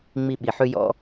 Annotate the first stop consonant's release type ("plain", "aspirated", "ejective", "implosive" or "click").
implosive